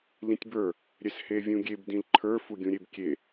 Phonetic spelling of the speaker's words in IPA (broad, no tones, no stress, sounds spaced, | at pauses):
l ĩ tʲ b ə˞ | ɾʲ ɛ s h e vʲ ũ ɡʲ e b d ĩ l ǃʰ ə˞ f u ɡʲ ũ ɾʲ e b kʲ e